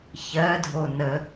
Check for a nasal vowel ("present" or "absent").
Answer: absent